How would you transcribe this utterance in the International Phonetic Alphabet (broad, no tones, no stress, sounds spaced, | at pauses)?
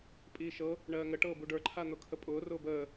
pʼ iː ʃ ɤ | ɳ ɜː ŋ ə ʈ ɤː b u ɖ ə˞ ǃʰ a n̪ ʊ kʰ ə pʼ ʊː r ʊː b əː